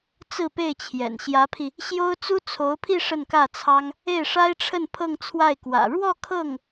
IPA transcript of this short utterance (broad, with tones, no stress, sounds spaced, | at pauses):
t͡s ɹ̩˥˧ p e˥˩ ɪ̯ t͡ɕʰ j ɛ̰˨˩ n ɕ j ä˧˥ pʰ i˧ | ɕ j o˥ ʊ̯ t͡s u˥ t͡sʰ o˧˥ ʊ̯ pʰ i˥˧ ʂ ə˥˧ n k ä˥˩ t͡sʰ ɑ˥ ŋ | e˥˩ ɪ̯ ʂ a˥ ɪ̯ ʈ͡ʂʰ ə˥˧ n pʰ ɤ˥˧ ŋ t͡sʰ w a˥˩ ɪ̯ k w ä̰˨˩ ɻ w ɔ˥˧ kʰ ɤ˥˩ ŋ